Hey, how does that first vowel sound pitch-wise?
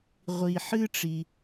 low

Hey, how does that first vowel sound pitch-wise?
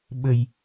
low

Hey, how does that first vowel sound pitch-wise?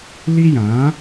high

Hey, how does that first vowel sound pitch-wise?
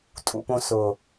low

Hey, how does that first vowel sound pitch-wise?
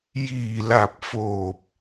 low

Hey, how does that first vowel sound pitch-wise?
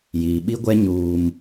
low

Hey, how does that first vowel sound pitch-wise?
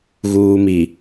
low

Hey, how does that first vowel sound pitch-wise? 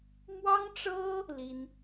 high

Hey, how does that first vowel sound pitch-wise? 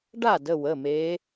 falling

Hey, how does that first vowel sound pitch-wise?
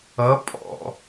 rising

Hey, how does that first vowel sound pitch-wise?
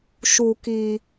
low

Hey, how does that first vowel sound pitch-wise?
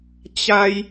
high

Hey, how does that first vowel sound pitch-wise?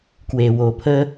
low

